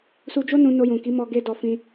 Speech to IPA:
s u˧ d͡ʒ o˦ n ũ˧ n o˧ j ũ˨ k i˨˦ m ɔ˦ ɡ e˦ d ɔ˧ f ĩ˧

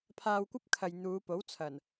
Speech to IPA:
pʰ aː˧ w kʷ ɐ˥ p̚ kʰ ɐ˨ j n̪ uː˨˧ p o˨˥ w t͡sʰ ɐ˨˩ n

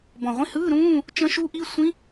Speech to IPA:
b ɔ̃˨˩ ʁʷ ĩ˧˥˧ h ɯː˧˥˧ ɾ ũː˧˥˧ | t͡ʃ ə̃˦˥ ʃ u˦˥ ʔ i˧˥˧ sʷ ĩ˦˥

